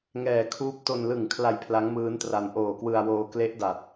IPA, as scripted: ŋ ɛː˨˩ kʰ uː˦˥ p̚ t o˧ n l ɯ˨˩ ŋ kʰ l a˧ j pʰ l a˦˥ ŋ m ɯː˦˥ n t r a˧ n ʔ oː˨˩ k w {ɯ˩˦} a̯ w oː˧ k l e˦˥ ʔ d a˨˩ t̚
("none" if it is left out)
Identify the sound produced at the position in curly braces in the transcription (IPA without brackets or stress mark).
ɯ˧